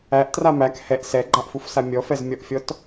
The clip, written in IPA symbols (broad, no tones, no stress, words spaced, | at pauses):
æʔtra mæk hɛʔ sɛɡ͡ǃaʔfufsa mʲɔfɛzmʲɔʔfʲɔt